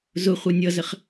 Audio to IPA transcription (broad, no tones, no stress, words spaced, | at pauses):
zʊχʷʌ nʲʌzəχ